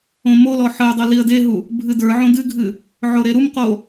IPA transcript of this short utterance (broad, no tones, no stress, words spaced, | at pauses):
õmolɔ ħəʊ̯dˤo liə̯deɦu | bʱɨdə˞ʕõ dɨɡʱɨ | ʕoɾeɾumqo